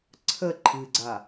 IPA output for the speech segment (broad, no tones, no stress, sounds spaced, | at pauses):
ǀʰ ə ǃʰ ɨ ɡ͡ǀ a